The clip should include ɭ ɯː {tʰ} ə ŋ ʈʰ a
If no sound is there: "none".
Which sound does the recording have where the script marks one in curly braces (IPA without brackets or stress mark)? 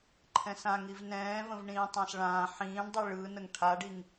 n